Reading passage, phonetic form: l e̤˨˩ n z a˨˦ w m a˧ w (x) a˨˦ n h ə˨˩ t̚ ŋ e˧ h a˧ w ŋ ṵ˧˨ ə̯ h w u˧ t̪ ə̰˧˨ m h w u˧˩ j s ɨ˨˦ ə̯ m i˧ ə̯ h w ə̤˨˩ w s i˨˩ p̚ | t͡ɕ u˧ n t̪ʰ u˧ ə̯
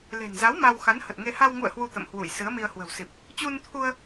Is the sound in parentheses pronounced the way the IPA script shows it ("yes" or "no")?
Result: yes